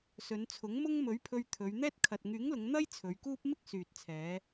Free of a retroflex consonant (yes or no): yes